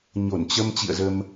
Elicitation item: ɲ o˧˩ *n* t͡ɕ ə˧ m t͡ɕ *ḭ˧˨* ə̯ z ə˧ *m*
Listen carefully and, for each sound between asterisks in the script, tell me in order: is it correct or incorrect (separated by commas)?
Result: correct, correct, correct